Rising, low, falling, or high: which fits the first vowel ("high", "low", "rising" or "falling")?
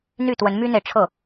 falling